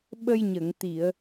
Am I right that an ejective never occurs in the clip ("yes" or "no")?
yes